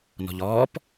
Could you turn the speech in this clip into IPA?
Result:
n ɔ̤ ʎ ɔː p

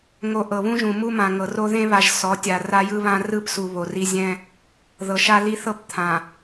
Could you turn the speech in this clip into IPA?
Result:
ŋ o˨ ʔ ɤ˨ β ũ˦ ʒ ũ˨ m u˦ m ã˨ ŋ ɤ˨ r o˦ ð ẽ˦ β a˨ ʒ s ɔ˨˦ tʲ a˨ r a˦ j ɯ˦ β ã˦ r ɯ˦˨ p s u˨ β o˨ r i˦ zʲ ɛ̃˦ | ð ɤ˨ ʃ a˦ l i˦ θ ɤ˦ p t̪ʰ ã˨

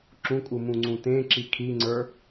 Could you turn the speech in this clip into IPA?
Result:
ǁ ũ kʼ u m ũ ŋ͡ǀ ũ t ẽ ǁ i kʰ i ŋ͡ǀ ə˞

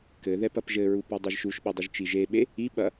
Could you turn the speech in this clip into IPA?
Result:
k ɘ ð ɛ p ɐ p ʒ ɘ ɹ u p ɔ dˤ i ʒ ʃ u ʃ ɓ i dˤ u ʒ t͡ʃ i ʒ e ɓ e | i ɓ ɐ

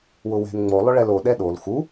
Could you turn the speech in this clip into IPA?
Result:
w ʊ w ɛ̤ n ŋ͡m o lˠ ʊ ɭ ɛ l o ɗ ɛ ɗ o l x u

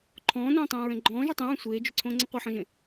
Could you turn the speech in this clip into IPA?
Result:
ǃʰ ɔ̃ː n õː tˤ õː ɹ ɛ̃ ɡ͡ǃ ɔ̃ː ʒ o tˤ ẽ ɹ ɛ̃ sʷ eː d͡ʒ ʏ ǀʰ õː ŋ͡ǀ ɛ̃ qʷ ɛ ħ ɔ̃ ʒ ẽ

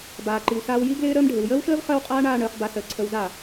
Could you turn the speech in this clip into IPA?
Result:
b aː˨ ǃ i˨ w s aː˧ w j i˦ ɡ l ɪː˦ ɾ əː˧ m ɖʱ ɪ˨ w j əː˦ w ʃ əː˦ v χ əː˦ w qʼ aː˦ ɳ aː˧ ɳ əː˨˦ χ b a˧ s əː˨ ǀʰ ə˧ w z a˦˨

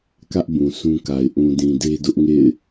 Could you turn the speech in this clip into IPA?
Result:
k ä˦ ʔ b ũ˨ sʰ ũ˦ k a˨ ɪ̯ ʔ ũ˨ d ĩ˨ d e˦ d ʊ˦ ʔ ŋ ḛ˦˨ ɪ̯

